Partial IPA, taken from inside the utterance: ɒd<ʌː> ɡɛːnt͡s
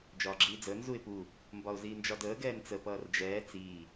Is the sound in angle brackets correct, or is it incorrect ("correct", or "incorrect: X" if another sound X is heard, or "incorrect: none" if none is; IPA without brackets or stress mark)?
incorrect: əː